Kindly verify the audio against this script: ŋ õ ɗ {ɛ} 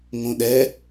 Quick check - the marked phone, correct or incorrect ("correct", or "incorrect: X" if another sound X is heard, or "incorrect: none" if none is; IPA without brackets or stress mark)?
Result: correct